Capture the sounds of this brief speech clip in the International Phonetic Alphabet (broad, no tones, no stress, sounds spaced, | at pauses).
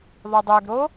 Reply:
ðˤ o dˤ ø ɡ ɾ o